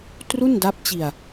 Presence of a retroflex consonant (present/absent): absent